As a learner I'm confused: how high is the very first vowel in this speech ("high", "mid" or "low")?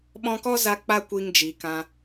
mid